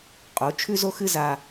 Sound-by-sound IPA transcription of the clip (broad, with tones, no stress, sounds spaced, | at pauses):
qʼ o˨˦ t͡ʃʰ ʉ˦ z o˦ x ɨ˦ z a˦